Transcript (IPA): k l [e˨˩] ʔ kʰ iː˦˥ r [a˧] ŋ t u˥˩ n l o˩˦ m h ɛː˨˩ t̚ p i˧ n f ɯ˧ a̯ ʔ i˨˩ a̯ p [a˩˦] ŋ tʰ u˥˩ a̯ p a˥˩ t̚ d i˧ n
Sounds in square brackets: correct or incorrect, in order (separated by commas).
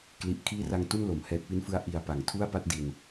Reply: incorrect, correct, correct